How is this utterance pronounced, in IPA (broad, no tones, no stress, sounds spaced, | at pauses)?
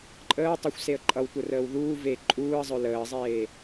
ǃʼ əː w tˤ ə xʷ s e ə̯ ǃʼ ʌ w tʷ ə r əː w ð uː v e ǃʼ uː ə̯ zˤ œ l əː zˤ eː